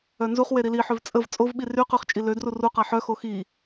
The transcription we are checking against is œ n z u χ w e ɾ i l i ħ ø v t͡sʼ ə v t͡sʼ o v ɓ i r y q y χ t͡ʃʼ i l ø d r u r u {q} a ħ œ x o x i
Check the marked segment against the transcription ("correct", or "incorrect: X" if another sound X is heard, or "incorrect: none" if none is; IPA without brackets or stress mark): correct